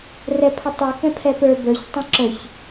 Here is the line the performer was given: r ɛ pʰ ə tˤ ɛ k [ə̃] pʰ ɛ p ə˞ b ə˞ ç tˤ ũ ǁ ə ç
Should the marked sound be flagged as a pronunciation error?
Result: yes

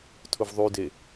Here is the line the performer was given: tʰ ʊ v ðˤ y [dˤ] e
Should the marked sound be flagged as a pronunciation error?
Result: yes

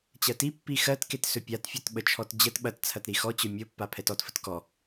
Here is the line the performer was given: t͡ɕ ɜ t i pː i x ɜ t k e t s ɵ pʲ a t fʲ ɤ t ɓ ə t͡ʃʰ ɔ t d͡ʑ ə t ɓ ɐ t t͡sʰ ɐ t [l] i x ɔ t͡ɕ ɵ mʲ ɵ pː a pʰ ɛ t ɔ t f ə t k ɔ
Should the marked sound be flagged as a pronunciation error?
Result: yes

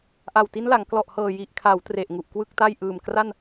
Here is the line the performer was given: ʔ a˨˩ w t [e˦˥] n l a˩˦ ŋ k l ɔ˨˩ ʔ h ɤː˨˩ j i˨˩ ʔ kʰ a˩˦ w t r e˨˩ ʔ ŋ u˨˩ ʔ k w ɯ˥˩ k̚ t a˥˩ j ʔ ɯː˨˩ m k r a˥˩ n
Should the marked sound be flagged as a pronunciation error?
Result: yes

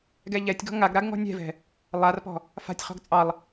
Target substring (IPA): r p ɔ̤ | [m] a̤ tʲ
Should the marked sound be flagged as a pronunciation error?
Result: yes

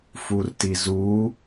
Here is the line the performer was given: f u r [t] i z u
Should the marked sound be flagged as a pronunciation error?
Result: no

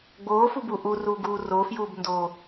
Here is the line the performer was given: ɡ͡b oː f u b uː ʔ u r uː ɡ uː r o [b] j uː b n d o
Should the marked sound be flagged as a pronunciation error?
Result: yes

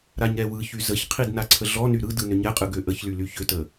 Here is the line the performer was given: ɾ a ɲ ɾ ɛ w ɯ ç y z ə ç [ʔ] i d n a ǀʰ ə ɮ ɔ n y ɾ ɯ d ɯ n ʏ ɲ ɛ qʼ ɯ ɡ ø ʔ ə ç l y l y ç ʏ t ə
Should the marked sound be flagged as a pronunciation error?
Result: yes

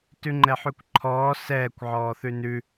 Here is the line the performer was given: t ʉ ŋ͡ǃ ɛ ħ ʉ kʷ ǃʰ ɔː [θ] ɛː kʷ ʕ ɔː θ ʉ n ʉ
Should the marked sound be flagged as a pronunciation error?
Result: yes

